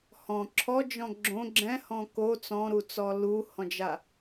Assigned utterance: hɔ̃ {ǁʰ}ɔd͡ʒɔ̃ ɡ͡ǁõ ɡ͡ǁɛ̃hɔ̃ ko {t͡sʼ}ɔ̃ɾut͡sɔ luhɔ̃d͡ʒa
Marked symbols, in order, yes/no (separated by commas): yes, no